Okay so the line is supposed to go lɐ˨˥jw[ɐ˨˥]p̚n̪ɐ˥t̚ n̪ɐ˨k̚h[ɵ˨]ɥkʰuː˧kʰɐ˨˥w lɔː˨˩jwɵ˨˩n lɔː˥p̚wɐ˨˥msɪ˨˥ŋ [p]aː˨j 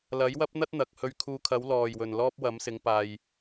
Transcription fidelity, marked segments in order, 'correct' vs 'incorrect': incorrect: ɐ˥, incorrect: ɵ˧, correct

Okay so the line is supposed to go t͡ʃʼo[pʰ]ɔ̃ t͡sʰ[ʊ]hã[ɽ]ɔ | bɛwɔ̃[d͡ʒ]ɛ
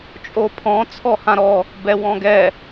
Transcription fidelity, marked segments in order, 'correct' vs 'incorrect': correct, incorrect: ɔ, incorrect: ɾ, incorrect: ɡ

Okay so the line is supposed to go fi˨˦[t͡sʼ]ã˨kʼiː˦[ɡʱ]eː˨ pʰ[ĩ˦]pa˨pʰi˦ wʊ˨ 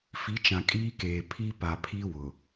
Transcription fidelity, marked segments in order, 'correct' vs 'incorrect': incorrect: t͡ʃ, incorrect: k, incorrect: i˦

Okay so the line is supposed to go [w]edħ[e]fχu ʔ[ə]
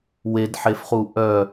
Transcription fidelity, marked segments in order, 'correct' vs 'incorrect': correct, correct, incorrect: œ

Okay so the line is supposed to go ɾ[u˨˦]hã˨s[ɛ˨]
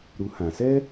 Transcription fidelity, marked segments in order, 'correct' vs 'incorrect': correct, incorrect: ɛ˦

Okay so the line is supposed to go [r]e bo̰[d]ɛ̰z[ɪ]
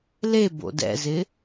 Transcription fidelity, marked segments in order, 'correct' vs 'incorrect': incorrect: l, correct, correct

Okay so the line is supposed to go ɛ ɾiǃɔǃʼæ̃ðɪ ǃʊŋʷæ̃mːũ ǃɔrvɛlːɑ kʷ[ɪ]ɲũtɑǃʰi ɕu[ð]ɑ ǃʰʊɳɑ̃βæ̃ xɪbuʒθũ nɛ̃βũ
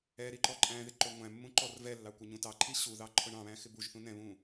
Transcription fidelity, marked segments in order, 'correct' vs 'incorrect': correct, correct

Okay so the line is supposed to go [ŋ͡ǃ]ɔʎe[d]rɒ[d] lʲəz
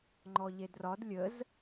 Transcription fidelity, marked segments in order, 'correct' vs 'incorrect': correct, correct, correct

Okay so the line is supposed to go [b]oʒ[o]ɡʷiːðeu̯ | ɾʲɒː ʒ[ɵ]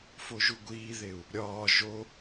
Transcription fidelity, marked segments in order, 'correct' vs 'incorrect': incorrect: f, incorrect: u, incorrect: o

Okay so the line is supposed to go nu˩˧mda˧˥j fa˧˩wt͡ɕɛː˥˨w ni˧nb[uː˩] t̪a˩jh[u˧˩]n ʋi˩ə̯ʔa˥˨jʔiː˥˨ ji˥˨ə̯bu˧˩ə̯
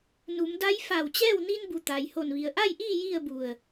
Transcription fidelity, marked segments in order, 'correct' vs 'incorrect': incorrect: u˩, incorrect: o˧˩

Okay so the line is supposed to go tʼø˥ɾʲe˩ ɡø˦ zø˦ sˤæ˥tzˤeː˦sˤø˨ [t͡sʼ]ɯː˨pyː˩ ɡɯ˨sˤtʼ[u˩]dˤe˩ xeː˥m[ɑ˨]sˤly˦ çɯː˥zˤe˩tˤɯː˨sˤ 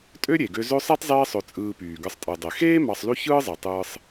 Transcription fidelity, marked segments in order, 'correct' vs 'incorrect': correct, incorrect: ɯ˩, correct

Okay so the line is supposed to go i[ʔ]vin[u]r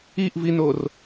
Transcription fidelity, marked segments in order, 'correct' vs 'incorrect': correct, incorrect: o

